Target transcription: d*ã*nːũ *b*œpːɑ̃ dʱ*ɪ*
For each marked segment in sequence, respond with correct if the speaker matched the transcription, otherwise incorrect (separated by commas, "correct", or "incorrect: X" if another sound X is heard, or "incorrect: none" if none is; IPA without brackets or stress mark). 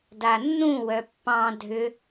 incorrect: a, incorrect: w, incorrect: ʏ